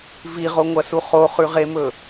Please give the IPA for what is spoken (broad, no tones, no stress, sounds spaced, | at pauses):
v i ʁ o ŋʷ ɐ s u χ o χ ʉ ʁ e m ɵ